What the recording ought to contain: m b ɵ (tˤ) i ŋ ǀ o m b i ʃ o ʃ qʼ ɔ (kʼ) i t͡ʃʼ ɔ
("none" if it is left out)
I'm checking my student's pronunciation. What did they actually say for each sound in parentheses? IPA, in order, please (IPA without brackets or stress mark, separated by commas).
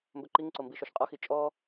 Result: ǃ, x